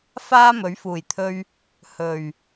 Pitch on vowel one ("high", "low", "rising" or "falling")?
high